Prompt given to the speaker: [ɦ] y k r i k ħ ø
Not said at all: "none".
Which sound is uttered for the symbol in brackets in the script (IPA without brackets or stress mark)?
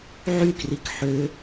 ʕ